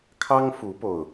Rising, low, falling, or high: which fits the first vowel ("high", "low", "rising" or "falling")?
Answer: high